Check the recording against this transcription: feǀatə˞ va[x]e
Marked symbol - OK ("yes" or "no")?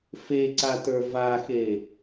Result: yes